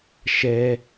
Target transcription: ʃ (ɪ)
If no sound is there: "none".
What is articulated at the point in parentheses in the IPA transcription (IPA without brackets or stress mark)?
ɛ